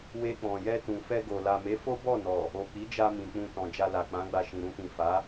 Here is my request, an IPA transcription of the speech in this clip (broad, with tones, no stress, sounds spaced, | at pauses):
w e˧ k͡p ɔ̃˨ j ɛ˧ t ũ˨ f ɛ˧ ɡ o˨ l a˨ m e˨˦ f o˦ b ɔ˦˨ n ɔ˨ | o˨ k͡p i˨˦ d͡ʒ a˧ m ĩ˨ k͡p ũ˧ t ɔ̃˨ d͡ʒ a˧ l a˨ k͡p ã˨˦ ɡ͡b a˧ ʃ ĩ˨ ɾ ũ˧ t ĩ˨ f a˨˦